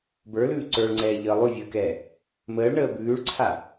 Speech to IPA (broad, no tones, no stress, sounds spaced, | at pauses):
b ə˞ l ʉː ǀ ə˞ ɭ ŋ͡ǀ ɛː ʎ əː lˠ ʉ vʲ əː k ɛː | m əː ɭ ɳ əː b ʉː ɭ ǀʰ a